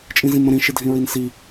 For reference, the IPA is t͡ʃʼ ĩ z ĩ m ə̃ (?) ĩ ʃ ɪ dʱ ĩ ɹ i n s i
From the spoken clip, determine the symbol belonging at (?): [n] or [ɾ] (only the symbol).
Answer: ɾ